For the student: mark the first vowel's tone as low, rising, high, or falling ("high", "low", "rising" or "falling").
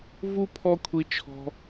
high